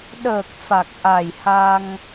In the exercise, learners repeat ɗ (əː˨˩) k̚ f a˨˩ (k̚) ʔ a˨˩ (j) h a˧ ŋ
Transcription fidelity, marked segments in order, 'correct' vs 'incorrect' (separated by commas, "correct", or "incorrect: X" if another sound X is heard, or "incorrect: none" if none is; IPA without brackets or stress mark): correct, correct, correct